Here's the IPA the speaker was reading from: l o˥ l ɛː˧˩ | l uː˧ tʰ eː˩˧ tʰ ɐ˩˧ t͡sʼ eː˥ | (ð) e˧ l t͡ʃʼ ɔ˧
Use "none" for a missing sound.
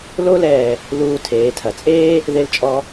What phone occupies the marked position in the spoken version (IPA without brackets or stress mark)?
ð